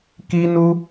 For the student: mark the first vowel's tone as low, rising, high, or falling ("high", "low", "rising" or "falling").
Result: high